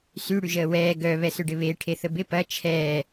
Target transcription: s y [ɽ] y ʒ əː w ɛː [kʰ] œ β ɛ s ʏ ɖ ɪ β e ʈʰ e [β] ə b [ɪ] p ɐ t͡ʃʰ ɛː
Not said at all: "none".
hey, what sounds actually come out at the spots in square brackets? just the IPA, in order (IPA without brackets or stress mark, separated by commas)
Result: ɽ, ɡ, θ, ɪ